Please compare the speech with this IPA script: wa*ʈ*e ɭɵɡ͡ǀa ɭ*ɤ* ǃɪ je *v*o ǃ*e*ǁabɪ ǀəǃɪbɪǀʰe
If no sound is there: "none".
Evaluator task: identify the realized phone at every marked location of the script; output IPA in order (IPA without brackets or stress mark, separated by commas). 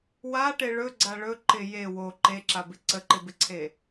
ʈ, ɵ, w, e